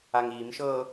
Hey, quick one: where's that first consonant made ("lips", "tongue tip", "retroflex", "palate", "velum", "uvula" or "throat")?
velum